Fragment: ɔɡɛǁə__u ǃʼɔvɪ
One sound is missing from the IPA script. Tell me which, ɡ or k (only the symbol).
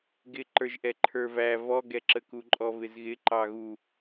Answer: k